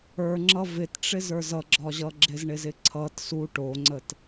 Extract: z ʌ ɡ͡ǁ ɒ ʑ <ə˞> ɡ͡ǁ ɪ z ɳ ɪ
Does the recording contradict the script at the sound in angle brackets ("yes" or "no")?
yes